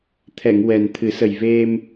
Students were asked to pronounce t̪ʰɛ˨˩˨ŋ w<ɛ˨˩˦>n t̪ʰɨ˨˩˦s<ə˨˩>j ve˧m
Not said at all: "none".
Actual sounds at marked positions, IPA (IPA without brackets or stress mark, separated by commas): ɛ˨˩, ə˨˩